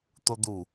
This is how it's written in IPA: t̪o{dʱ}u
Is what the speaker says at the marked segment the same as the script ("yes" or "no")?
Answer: no